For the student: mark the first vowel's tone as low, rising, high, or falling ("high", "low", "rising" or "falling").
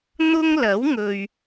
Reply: high